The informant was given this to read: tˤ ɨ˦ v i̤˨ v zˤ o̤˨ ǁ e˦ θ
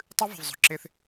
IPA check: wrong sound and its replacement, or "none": none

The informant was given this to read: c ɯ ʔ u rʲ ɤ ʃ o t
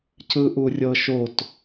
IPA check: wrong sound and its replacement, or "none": none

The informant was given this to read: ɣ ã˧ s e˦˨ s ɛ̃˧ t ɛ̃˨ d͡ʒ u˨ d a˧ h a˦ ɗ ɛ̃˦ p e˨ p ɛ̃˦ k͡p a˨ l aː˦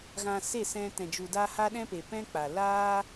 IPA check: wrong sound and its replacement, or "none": none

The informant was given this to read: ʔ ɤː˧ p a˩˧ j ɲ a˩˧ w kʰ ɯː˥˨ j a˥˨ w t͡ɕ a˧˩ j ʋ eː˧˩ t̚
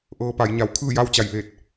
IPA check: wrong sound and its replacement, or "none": none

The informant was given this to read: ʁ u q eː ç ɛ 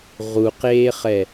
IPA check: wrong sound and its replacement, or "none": ç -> χ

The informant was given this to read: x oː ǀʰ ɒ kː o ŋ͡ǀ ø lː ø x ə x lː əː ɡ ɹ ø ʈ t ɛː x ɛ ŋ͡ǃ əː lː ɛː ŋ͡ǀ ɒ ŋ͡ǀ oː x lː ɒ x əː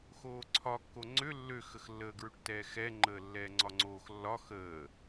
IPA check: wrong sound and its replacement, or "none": none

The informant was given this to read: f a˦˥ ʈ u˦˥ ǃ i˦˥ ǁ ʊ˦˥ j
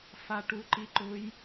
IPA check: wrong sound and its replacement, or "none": ǁ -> ǃ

